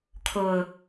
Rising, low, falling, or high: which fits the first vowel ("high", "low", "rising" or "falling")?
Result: low